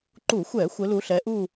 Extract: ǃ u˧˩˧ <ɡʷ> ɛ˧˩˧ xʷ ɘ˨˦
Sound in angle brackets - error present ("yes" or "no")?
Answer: yes